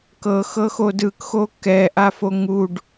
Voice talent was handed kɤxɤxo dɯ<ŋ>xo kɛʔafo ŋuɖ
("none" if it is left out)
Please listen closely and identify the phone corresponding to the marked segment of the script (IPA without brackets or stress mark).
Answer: k